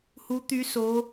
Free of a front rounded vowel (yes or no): no